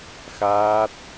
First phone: x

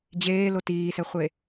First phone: d͡ʑ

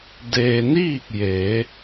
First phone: d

